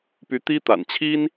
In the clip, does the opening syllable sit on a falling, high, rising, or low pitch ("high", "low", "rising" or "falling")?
rising